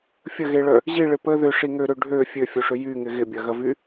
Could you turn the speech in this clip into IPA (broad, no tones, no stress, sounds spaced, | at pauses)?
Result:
fʲ ə ɣ e ɭ œ | ʑ i ɭ ɪ p ə ð ʏ ʂ i ŋ ø ɾ ø ɖʱ ø fʲ ø fʲ o ʂ ʏ j y ŋ ɪ ɣ ɪ bʲ ɐ ɣ ɐ v y